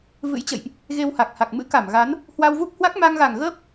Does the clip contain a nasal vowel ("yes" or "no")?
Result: no